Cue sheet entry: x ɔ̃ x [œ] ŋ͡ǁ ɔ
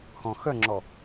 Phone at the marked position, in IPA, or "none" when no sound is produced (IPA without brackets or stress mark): œ